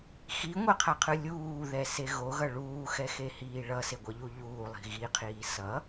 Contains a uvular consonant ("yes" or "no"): yes